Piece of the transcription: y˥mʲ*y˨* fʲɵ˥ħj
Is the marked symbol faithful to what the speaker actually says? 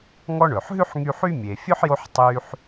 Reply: no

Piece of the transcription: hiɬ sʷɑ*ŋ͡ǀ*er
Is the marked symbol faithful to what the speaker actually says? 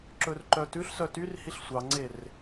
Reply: yes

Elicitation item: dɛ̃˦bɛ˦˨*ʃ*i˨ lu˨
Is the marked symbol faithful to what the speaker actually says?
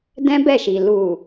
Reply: yes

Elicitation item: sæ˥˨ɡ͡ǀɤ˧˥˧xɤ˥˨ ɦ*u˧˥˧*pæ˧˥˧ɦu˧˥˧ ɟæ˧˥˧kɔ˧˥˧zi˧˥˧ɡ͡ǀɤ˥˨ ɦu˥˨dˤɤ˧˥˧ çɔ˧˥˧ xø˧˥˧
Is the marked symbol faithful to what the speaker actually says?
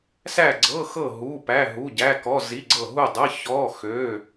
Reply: yes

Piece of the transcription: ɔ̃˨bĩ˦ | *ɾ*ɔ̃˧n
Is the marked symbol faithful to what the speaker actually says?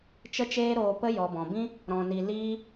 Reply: yes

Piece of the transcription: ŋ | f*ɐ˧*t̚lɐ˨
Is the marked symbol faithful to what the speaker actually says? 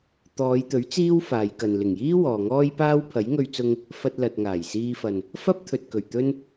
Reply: yes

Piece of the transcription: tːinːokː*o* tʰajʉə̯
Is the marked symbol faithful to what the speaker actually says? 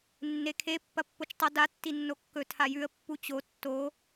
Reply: no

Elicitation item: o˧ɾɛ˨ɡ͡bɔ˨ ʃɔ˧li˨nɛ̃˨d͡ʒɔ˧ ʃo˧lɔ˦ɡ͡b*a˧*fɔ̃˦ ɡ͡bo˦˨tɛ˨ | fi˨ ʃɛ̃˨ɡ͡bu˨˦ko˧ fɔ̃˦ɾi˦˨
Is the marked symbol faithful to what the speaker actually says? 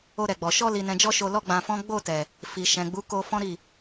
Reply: no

